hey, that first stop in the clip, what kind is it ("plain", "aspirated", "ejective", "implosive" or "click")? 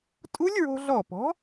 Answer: ejective